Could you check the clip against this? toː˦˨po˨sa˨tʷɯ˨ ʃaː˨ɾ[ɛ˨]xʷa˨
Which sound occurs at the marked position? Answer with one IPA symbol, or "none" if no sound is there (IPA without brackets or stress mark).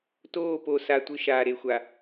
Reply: e˨